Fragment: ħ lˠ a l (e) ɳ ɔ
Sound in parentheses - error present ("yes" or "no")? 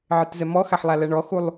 yes